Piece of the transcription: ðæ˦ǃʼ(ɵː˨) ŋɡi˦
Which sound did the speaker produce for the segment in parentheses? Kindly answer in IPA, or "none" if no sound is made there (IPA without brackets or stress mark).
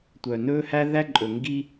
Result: ɵ˨